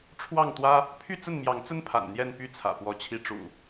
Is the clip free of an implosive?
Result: yes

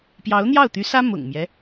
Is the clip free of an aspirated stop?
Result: yes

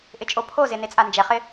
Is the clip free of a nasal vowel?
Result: yes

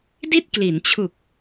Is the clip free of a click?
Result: yes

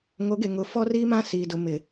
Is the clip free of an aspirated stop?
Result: yes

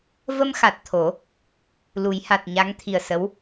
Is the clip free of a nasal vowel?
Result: yes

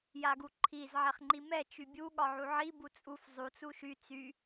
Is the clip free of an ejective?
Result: no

